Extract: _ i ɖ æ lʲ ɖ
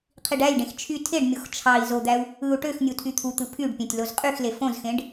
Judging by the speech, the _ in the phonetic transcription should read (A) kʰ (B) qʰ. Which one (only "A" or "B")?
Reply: B